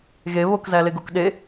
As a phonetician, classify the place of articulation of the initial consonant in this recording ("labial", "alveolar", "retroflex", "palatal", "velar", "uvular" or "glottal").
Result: velar